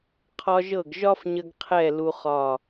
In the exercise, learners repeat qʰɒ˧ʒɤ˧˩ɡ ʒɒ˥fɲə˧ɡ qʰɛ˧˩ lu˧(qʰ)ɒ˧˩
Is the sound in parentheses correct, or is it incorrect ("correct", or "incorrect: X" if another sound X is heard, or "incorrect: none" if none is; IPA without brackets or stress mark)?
incorrect: χ